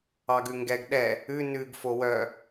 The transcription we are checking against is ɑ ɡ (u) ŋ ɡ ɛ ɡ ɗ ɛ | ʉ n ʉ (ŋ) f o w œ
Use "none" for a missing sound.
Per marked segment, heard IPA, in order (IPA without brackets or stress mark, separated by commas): ʉ, ɡ